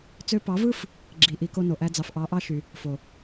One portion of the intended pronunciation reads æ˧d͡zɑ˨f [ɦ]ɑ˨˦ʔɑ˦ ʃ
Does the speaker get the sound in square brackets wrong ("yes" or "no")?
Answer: yes